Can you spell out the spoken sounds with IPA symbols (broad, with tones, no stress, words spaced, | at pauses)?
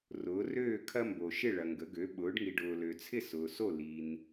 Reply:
rʊː˩˥røː˥˩kʰɐ˦ mbo˨ʃɪ˥˩ɭɐ˨ŋɡə˩˥ ɡø˩˥ɓʊː˩˥ɖŋi˨ ɖʊː˨ lø˨t͡sʰɪ˥˩ sʊː˨so˥˩ li˨n